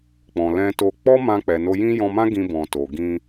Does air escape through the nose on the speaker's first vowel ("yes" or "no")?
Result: yes